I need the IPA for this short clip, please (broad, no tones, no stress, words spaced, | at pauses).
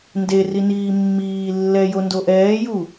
nde riniːmːiː lːɛjo ndoʔɛːju